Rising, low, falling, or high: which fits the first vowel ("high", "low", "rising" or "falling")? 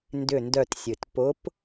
falling